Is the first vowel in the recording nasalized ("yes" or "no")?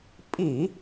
no